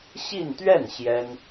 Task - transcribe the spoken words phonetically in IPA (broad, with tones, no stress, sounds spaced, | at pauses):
ɕ i˥˧ n t̪ ɥ ɛ˥˩ n ɕ j ɛ˥ n